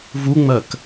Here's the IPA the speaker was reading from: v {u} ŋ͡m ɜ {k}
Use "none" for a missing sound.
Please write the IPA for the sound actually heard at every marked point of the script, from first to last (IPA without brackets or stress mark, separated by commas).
u, k